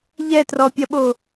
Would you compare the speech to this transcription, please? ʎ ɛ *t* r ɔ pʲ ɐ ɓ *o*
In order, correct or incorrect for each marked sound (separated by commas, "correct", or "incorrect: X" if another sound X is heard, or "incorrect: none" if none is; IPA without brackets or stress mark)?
correct, correct